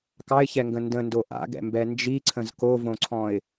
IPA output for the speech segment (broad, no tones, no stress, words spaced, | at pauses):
kɑɪ̯çɛŋɡə̃ ndə̃ndo ʔa̰ɡɛ̰mbɛ nd͡ʒiǀʰə̃z kovõǀʰɔ̃ɪ̯